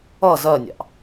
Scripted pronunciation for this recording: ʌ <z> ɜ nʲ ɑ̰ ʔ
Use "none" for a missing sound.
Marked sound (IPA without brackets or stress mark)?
z